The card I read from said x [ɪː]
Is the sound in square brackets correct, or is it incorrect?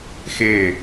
correct